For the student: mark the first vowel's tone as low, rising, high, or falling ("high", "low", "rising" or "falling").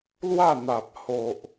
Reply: falling